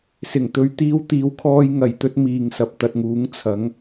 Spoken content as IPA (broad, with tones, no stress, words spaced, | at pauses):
sɪ˨˩ŋt̪ɵ˨ɥ t̪iː˧wt̪iː˨wkʰɔː˧j ŋɐ˨˩jt̪ɵ˧t̚ miː˨ŋsɐ˨p̚t̪ɐ˨t̚ŋuː˨˥ŋ t͡sʰɐ˨˥ŋ